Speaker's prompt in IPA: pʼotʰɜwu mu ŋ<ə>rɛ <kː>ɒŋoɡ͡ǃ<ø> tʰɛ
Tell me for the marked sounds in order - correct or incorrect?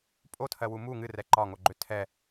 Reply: incorrect: ɨ, incorrect: ǃ, correct

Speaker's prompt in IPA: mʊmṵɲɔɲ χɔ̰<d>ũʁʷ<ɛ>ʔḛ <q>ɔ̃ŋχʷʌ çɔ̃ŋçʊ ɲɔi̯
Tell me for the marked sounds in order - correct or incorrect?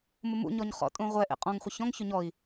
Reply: incorrect: tʼ, correct, incorrect: qʼ

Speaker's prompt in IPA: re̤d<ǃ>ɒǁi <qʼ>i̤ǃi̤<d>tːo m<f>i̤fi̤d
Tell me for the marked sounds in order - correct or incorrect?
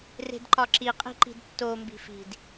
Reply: correct, correct, correct, incorrect: b

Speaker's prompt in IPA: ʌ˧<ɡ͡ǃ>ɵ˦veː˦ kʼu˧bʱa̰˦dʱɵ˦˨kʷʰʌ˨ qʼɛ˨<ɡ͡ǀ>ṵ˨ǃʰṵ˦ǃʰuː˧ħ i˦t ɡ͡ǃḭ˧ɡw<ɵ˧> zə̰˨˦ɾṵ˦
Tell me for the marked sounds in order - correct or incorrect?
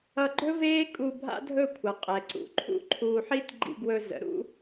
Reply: correct, incorrect: ǀ, correct

